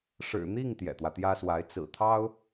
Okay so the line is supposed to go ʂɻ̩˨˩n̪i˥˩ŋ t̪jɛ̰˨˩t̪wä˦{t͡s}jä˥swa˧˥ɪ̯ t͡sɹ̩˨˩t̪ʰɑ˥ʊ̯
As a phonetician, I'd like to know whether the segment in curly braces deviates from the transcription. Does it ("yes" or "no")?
yes